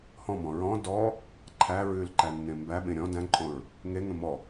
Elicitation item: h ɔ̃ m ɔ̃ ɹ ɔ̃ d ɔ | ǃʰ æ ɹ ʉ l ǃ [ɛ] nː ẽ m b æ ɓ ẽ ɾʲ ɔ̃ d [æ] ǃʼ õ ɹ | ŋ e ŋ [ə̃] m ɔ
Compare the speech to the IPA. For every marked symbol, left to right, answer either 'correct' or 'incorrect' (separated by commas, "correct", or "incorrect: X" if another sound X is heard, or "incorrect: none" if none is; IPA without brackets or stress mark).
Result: incorrect: æ, incorrect: æ̃, correct